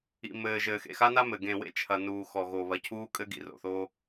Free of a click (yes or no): yes